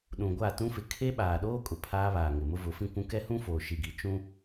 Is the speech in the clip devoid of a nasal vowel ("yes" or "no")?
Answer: no